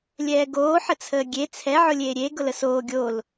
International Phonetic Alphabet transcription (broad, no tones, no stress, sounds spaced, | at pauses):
lʲ ɛː ɡ oː ħ ə t͡sʰ əː ɡʲ e t͡sʰ ɛ ʕ ʊ lʲ eː ɾʲ e ɡ ʊ l ə s oː ɡʲ o l